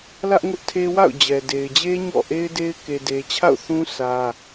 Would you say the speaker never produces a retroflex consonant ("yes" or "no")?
yes